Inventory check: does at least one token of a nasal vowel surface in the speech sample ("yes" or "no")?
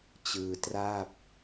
no